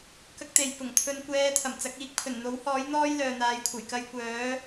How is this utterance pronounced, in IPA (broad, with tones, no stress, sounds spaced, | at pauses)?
k ɐ˥ k̚ t̪ e˨ j p ʊ˨˩ ŋ t̪ʰ ɵ˧ n kʷ ɛː˧ t̪ʰ ɐ˨˩ m t͡s ɐ˨˥ k̚ iː˧ k̚ pʰ ɵ˨˩ n n̪ o˨˥ w h ɔː˨˥ j n̪ ɔː˥ j l œː˨ n̪ aː˨˧ j kʷʰ ɐ˨˩ j k ɐ˧ j kʷ œː˨˥